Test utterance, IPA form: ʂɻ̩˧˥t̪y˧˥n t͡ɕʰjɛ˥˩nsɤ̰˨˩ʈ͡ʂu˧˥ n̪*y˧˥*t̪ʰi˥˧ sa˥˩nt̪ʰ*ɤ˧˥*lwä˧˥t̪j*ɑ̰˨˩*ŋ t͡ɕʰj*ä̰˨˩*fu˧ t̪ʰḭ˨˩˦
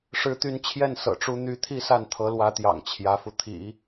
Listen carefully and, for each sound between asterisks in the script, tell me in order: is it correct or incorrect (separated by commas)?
correct, correct, correct, incorrect